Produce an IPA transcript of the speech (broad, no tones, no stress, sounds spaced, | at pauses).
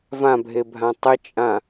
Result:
v ã bʱ e bʱ ã tˤ ɪ t͡ʃʼ ã